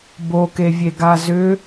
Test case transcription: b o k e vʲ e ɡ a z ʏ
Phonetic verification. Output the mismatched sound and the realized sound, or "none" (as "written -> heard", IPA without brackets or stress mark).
none